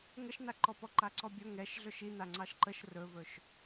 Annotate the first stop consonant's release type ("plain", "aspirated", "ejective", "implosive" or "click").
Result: click